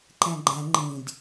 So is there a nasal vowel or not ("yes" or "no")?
yes